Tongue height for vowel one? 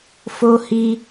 mid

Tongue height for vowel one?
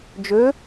mid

